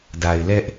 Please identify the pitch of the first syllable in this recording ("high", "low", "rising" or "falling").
low